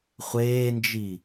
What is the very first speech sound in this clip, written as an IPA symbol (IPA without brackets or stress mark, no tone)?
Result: χʷ